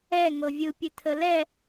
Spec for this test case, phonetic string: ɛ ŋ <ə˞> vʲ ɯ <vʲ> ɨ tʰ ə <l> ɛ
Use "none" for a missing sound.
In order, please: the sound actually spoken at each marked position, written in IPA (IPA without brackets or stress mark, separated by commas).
ɤ, pʲ, l